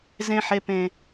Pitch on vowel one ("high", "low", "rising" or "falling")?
high